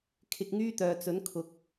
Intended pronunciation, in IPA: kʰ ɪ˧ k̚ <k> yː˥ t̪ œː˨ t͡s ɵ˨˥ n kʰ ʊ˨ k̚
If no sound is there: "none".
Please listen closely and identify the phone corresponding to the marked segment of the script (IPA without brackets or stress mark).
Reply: ŋ